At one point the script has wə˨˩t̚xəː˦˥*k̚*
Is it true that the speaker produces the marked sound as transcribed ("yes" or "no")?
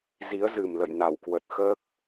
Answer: yes